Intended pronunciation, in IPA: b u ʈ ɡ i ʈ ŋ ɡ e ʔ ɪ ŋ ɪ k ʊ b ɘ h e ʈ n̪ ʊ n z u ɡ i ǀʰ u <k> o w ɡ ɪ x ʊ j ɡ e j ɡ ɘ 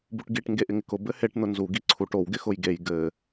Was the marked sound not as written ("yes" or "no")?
yes